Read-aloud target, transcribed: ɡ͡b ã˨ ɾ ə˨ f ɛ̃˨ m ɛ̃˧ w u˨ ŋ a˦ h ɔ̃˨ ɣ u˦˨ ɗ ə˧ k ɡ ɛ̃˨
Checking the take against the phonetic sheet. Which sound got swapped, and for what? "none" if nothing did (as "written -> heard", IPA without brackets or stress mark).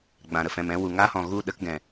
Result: none